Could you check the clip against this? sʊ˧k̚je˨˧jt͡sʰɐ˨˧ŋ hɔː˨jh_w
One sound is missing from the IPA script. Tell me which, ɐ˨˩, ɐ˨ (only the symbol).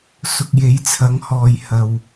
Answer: ɐ˨